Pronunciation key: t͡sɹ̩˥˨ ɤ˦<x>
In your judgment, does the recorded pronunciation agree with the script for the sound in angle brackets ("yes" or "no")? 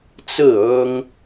no